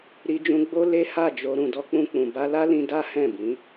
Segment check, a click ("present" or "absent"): absent